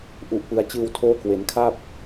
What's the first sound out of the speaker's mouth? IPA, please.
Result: ʔ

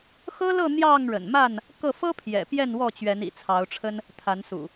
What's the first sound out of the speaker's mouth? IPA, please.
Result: x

